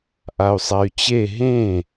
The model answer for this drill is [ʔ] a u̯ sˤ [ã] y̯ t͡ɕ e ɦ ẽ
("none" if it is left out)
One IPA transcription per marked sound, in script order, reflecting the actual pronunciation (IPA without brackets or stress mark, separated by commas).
ʔ, a